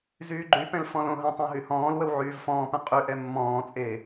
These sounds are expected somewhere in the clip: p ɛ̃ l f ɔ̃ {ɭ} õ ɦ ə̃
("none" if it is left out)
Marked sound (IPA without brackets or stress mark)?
l